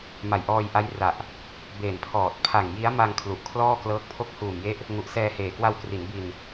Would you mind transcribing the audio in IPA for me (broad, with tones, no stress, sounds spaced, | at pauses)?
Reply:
m a˨˩ j ʔ ɔː˧ j ʔ a˦˥ j r a˨˩ ʔ | b eː˨˩ n pʰ ɔː˨˩ t̚ pʰ a˨˩ ŋ j i˦˥ a̯ m a˧ ŋ kʰ l u˨˩ ʔ kʰ l ɔː˥˩ k l ɤː˦˥ k̚ pʰ o˥˩ k̚ h uː˨˩ m j e˦˥ ʔ | ŋ u˨˩ ʔ s ɛː˧ h eː˨˩ k w a˧ w k r i˩˦ n b i˧ n